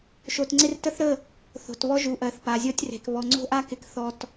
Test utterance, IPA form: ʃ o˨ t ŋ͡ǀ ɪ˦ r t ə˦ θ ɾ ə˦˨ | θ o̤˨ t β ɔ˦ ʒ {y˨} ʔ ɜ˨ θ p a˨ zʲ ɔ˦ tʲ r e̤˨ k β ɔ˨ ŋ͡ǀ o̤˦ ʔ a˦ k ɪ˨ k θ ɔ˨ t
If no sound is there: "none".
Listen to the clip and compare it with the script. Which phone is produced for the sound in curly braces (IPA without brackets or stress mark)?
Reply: u˨